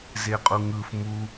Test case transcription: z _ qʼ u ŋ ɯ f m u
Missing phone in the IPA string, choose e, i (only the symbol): e